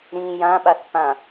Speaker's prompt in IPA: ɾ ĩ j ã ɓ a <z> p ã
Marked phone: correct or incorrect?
incorrect